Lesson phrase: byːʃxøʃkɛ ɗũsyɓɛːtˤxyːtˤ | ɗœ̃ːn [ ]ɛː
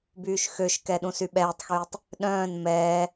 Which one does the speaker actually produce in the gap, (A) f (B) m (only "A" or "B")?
B